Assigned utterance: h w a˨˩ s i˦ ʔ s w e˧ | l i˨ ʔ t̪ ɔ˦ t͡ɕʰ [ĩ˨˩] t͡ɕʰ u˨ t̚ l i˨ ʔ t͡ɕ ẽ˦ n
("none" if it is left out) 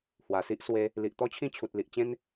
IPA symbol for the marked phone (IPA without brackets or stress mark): ĩ˥˧